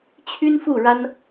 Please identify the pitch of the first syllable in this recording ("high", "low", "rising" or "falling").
high